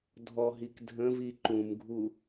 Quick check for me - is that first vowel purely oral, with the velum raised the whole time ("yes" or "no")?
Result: yes